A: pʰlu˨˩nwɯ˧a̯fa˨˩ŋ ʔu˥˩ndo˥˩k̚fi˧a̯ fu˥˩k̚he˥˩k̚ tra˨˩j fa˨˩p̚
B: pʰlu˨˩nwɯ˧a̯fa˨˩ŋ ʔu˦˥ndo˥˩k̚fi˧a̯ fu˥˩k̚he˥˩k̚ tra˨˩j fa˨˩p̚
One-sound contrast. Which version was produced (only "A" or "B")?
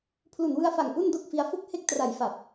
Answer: A